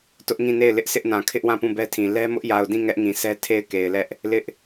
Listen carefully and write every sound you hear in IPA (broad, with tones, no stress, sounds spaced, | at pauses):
t ʊ˦ ʔ ŋ ĩ˦˨ n e˦˨ ɪ̯ l ɪ˦ ʔ s ɪ˦ ʔ n ã˨ kʰ ɪ˦ ʔ w ã˦˨ p ũ˦˨ b ɛ˦ tʰ ĩ˨ l ɛ˦ m ʊ˦ ʔ j a˨ ʊ̯ d ĩ˦˨ ŋ ɛ˦ ʔ ŋ ĩ˨ s ɛ˦ tʰ e˦˨ ɪ̯ k e˨ ɪ̯ l ɛ˦ ʔ | l ɪ˦ ʔ